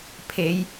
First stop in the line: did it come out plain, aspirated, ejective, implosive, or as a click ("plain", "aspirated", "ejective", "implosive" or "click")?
aspirated